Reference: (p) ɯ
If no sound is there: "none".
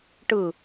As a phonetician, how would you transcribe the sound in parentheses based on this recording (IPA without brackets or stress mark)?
ʈ